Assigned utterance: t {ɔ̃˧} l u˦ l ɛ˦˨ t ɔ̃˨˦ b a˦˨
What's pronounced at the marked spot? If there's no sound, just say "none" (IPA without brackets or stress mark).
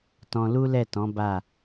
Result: ɔ̃˧